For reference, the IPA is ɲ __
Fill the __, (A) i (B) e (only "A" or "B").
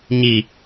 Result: A